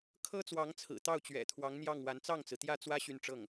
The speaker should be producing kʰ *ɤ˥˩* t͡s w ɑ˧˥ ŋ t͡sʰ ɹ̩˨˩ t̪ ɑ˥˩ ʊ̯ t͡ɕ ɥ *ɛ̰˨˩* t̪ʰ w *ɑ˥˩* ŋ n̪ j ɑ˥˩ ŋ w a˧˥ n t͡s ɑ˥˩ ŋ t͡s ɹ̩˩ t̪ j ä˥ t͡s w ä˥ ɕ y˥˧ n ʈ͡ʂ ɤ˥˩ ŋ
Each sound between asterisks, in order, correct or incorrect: incorrect, correct, incorrect

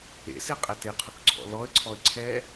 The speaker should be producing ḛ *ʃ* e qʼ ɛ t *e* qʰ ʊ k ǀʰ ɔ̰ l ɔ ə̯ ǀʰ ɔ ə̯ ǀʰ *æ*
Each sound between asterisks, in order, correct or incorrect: incorrect, correct, incorrect

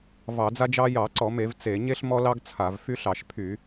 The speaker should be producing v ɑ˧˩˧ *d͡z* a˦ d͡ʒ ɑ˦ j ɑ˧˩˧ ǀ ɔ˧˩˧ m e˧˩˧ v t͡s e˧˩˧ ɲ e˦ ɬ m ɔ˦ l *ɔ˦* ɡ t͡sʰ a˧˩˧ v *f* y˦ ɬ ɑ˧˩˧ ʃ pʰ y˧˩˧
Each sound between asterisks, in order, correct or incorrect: correct, incorrect, correct

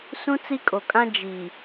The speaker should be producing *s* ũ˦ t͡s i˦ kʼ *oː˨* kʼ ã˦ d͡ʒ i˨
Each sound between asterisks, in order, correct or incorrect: correct, incorrect

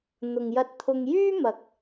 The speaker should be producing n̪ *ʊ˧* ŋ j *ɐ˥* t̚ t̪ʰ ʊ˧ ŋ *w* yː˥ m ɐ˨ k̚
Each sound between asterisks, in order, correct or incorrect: incorrect, incorrect, incorrect

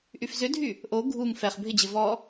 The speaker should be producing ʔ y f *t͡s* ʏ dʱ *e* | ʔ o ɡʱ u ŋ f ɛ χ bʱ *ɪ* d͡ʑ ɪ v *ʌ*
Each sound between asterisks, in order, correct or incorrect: incorrect, incorrect, correct, incorrect

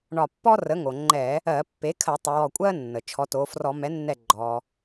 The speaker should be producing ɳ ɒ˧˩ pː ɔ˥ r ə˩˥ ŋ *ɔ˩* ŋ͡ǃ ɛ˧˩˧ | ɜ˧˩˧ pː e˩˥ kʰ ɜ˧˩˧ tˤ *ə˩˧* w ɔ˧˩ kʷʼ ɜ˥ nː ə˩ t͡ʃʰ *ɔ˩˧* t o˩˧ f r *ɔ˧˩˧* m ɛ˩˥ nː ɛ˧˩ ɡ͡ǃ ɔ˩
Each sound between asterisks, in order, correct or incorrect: incorrect, correct, correct, correct

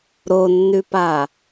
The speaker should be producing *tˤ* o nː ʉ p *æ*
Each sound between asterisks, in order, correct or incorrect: incorrect, incorrect

